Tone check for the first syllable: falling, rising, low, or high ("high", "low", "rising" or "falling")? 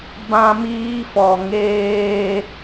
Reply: high